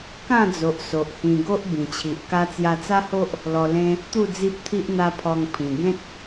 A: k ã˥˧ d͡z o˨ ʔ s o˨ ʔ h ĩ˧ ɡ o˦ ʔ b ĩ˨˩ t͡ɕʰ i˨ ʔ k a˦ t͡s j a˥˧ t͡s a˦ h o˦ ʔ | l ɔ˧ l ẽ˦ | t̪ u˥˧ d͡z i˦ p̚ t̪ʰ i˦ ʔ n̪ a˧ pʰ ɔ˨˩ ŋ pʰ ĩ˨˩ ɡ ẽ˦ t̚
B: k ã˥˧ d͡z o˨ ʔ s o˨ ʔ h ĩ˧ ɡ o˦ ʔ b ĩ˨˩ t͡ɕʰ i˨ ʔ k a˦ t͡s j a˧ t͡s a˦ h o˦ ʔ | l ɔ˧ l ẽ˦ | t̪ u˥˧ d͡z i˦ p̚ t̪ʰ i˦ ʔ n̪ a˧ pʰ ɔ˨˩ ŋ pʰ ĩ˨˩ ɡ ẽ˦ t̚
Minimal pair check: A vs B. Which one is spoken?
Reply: B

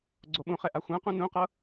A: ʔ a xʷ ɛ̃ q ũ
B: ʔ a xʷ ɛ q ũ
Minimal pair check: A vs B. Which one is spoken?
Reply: A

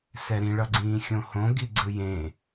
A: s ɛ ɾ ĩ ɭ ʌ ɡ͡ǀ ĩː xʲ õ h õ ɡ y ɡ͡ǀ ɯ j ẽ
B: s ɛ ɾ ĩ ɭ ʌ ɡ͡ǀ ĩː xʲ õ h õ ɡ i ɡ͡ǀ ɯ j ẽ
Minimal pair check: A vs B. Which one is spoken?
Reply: B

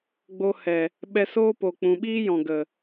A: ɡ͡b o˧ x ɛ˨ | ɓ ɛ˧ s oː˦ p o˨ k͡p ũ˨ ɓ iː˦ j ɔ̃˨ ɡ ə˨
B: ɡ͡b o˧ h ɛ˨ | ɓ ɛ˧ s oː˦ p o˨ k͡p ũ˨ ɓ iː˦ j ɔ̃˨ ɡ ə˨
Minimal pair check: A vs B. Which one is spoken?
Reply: B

